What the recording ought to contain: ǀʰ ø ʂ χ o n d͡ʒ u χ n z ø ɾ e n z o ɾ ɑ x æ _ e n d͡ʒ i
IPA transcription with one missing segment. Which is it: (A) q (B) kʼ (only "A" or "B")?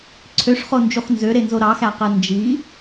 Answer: A